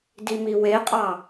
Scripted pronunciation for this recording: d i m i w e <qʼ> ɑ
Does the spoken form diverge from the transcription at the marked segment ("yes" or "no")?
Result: no